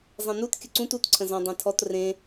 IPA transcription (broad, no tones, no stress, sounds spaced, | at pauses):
zˤ ẽ n u t kʲ ə ǀ ũ t u t ǀʰ ə̃ z ɔ̃ dˤ ẽ tʰ ɔ t r ẽ